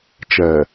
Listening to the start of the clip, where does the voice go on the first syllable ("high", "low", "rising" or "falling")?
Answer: low